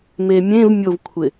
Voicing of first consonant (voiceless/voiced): voiced